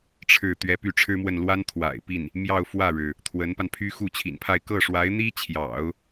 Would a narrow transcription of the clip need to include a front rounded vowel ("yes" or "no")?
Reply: yes